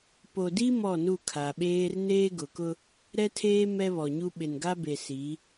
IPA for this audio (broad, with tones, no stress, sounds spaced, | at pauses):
p o˨ d i˦ m ɔ˦˨ n u˦˨ kʰ a˨ ɓ eː˦ r n eː˦ ɡ ʊ˨ k ʊ˦ | ɾ ɛ˦ tʰ eː˦ m ɛ˦ β ɔ˨ ɲ u˦ ɓ ɪ˨ n ɡ a˦ b e˨ s i˨˦